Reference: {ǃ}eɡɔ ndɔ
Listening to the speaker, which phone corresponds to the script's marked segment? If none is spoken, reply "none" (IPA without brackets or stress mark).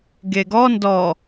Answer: ɡ